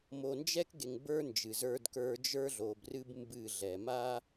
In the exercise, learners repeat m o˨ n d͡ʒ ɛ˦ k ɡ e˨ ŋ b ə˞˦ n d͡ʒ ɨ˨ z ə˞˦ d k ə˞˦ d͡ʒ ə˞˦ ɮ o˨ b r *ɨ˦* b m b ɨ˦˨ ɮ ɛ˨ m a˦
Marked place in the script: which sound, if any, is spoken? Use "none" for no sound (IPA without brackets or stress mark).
ɨ˦